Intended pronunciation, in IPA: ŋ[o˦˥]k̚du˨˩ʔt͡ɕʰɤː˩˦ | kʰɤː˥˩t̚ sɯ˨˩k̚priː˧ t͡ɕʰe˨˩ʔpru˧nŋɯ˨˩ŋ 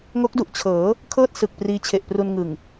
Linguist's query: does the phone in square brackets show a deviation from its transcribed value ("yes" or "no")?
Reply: no